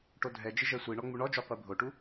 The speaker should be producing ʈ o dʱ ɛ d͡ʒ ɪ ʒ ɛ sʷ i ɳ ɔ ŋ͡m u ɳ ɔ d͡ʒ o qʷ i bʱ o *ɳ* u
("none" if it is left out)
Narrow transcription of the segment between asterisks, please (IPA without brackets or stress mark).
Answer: ʈ